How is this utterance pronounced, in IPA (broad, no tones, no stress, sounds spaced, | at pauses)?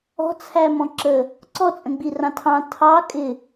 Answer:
ɔ̤ t͡sʰ æ m ɔ̃ ǁ ə | ǀ ɔ t͡sʼ ə̃ ɡ͡b i r ɑ̃ tʰ ɑ̃ tʰ ɑ kʼ ɪ